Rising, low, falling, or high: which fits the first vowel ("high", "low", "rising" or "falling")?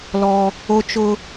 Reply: high